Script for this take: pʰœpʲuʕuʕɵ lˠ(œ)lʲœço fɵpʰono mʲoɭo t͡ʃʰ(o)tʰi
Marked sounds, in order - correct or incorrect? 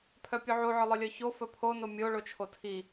correct, correct

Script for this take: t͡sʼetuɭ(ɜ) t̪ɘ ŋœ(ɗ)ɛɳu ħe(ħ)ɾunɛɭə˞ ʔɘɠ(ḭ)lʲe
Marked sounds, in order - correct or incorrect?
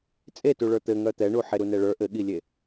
incorrect, incorrect, incorrect, incorrect

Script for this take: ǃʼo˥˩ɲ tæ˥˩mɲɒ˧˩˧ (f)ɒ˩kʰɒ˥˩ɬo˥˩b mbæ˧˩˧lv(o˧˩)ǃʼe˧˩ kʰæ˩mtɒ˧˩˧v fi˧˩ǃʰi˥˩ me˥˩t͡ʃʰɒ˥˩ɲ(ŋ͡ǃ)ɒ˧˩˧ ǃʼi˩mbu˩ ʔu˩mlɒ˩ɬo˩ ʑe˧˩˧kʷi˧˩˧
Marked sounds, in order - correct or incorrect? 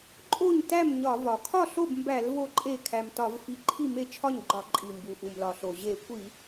incorrect, correct, incorrect

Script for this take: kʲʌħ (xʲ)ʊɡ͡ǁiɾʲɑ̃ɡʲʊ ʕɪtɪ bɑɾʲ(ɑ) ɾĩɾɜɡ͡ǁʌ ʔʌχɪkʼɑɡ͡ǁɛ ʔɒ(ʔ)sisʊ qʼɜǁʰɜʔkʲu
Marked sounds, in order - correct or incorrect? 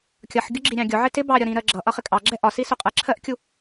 incorrect, incorrect, incorrect

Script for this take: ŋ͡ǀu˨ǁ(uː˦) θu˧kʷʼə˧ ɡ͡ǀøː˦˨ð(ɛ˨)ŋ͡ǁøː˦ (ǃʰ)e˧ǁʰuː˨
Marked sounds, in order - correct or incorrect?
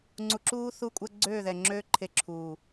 correct, correct, correct

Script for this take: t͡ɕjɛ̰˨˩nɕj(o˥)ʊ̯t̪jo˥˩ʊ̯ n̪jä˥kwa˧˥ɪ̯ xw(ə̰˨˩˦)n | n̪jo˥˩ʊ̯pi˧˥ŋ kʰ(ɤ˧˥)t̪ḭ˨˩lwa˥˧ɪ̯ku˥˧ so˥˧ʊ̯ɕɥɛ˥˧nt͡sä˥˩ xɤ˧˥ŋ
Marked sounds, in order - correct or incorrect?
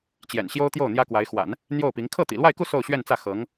correct, incorrect, incorrect

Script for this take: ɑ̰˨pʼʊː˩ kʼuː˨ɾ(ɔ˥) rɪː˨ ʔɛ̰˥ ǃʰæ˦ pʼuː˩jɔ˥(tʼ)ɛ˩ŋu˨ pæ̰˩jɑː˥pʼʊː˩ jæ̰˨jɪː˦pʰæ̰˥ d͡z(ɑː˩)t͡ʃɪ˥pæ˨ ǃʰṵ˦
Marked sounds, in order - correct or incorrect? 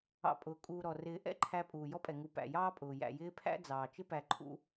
incorrect, incorrect, correct

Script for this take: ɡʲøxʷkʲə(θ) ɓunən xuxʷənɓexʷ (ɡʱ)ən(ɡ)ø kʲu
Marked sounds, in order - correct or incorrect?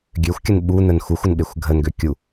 incorrect, correct, correct

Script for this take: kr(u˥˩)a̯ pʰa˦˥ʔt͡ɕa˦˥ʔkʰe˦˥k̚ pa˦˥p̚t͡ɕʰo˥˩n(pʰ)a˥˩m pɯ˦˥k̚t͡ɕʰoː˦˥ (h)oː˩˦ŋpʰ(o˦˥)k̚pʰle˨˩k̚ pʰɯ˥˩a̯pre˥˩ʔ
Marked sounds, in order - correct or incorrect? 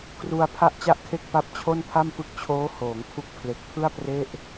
incorrect, correct, correct, incorrect

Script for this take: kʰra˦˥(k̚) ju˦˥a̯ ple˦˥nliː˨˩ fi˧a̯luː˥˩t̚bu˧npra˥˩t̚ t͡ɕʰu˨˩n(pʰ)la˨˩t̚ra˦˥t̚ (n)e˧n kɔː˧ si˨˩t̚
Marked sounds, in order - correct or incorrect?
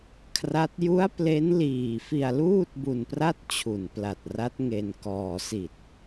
incorrect, incorrect, incorrect

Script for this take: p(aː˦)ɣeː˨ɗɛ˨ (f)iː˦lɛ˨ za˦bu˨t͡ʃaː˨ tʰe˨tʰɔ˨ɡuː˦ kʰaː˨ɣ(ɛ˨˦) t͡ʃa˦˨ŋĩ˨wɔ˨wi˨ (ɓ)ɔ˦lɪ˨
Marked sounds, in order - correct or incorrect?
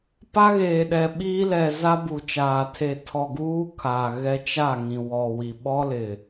incorrect, incorrect, incorrect, correct

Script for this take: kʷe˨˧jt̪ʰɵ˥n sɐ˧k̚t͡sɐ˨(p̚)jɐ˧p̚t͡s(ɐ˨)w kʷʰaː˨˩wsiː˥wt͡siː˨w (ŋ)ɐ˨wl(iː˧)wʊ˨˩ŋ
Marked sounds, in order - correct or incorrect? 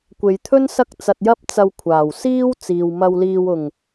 incorrect, correct, incorrect, incorrect

